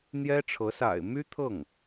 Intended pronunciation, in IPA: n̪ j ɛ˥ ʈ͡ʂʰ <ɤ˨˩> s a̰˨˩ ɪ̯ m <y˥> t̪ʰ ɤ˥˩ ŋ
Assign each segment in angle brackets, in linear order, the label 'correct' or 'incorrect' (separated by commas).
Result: incorrect, correct